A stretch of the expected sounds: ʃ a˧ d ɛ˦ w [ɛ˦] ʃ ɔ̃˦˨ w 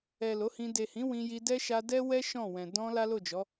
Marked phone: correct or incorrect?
correct